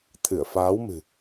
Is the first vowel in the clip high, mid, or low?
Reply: high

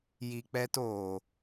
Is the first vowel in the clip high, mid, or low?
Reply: high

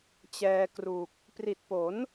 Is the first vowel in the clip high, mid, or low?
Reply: mid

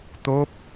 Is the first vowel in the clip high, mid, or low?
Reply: mid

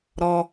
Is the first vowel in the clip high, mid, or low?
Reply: mid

